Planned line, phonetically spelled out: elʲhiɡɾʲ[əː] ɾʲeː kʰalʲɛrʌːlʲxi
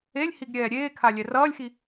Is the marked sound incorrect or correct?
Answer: incorrect